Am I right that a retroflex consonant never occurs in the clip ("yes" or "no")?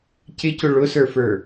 no